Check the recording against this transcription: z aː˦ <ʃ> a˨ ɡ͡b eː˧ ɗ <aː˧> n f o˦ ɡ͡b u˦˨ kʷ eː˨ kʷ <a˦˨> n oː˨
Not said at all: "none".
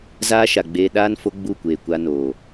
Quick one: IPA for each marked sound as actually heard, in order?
ʃ, aː˦, a˧

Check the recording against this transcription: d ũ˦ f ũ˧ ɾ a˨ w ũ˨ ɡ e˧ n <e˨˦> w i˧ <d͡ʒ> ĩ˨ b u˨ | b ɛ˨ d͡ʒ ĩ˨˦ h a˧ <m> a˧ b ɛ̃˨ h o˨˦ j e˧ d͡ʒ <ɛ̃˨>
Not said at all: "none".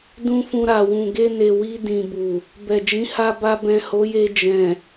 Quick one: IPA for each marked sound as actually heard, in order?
e˨, d, b, ɛ̃˨

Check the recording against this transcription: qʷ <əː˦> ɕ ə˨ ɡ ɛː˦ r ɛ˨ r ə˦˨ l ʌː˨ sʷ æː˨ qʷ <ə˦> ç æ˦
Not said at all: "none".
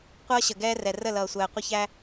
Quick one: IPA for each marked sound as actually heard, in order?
ʌː˦, ə˦

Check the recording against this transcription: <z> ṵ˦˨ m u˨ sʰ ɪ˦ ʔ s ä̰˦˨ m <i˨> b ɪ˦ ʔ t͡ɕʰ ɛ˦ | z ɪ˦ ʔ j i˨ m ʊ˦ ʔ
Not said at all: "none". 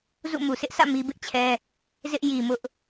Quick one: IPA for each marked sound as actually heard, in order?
z, i˦

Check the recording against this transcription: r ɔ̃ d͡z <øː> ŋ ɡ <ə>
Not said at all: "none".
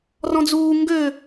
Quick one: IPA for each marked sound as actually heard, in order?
uː, ø

